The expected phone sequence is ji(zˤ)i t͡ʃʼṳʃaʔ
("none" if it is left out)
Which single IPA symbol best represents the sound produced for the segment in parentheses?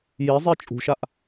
zˤ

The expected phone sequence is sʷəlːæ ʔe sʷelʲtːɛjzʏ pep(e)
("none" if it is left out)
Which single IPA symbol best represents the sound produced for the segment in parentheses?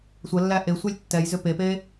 e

